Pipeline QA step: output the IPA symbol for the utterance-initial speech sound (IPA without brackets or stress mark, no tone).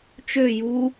t͡ʃ